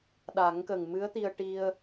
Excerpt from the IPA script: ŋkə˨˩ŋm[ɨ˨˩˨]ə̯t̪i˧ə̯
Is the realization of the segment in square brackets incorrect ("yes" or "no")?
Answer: yes